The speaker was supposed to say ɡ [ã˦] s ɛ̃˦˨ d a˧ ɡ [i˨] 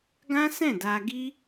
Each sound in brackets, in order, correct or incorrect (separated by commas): correct, incorrect